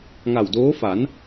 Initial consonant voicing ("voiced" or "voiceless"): voiced